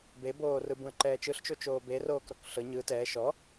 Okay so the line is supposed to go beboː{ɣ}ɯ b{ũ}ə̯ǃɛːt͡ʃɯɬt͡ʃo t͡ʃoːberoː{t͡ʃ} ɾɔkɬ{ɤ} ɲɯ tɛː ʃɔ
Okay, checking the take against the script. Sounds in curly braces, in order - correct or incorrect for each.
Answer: incorrect, correct, incorrect, correct

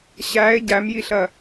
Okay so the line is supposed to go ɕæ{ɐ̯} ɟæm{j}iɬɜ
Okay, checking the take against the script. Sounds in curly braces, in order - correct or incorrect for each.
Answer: incorrect, correct

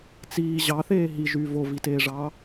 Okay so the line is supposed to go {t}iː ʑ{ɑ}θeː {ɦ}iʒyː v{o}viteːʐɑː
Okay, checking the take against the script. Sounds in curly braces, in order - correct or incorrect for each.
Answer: incorrect, correct, correct, correct

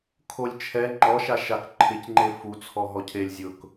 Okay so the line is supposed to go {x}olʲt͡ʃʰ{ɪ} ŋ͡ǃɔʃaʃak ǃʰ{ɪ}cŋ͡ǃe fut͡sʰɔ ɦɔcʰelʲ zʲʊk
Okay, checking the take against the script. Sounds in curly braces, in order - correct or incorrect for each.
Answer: incorrect, incorrect, correct

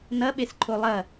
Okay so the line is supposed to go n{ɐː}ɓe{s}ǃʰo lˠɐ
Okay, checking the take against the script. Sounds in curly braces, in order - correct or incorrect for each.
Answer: incorrect, correct

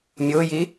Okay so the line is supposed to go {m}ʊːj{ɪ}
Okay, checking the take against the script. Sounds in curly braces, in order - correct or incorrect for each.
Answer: incorrect, incorrect

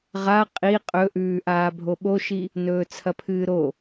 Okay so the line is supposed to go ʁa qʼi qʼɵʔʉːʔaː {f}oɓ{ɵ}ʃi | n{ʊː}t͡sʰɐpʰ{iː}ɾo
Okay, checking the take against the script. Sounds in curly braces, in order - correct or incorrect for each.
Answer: incorrect, incorrect, incorrect, incorrect

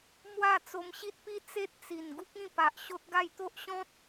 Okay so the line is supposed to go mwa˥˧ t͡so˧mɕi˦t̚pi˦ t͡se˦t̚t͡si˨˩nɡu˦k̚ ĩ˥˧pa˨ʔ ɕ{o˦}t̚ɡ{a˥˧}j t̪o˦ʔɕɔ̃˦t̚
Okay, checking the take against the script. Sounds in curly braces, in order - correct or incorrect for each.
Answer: correct, correct

